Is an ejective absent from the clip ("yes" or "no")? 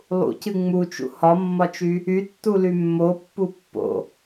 yes